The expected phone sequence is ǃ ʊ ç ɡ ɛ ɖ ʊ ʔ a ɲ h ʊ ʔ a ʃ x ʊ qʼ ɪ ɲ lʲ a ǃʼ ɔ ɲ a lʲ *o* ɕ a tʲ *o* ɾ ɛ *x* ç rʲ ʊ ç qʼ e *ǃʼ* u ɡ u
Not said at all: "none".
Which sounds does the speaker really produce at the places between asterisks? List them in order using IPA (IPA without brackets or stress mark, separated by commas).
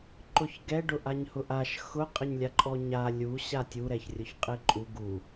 u, u, none, ǃʼ